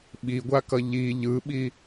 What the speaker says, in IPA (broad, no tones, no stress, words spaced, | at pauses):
ɓiɡʷakʌ ʎi ʎɯɓi